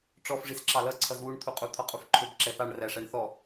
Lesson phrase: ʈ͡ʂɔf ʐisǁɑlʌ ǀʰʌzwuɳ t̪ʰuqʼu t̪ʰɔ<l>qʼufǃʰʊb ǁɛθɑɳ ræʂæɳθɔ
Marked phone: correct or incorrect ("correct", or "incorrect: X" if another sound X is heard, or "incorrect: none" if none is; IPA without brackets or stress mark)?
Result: incorrect: none